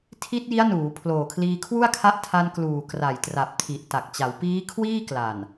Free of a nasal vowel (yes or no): yes